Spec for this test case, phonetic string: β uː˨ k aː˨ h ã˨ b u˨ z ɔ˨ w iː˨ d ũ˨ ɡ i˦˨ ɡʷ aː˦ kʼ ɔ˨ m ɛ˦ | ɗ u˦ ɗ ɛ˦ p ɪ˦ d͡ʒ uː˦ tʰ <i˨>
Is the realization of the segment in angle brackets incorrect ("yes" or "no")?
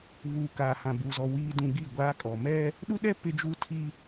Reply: yes